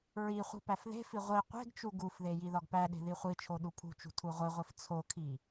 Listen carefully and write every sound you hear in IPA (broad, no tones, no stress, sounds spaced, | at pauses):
ɹ i χʷ i̤ p æ f ð e̤ f i ʁʷ i qʷ e̤ ɡ t͡ʃ u ɡ u f ð e j i ð ɒ ɡ p æ ɗ e̤ ð i χʷ i t͡ʃʰ o ɗ u pʰ ṳ t͡ʃ ṳ tʰ u ʁʷ i ʁʷ i f t͡sʰ o kʰ i